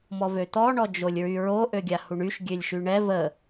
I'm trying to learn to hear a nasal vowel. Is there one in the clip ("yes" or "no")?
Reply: no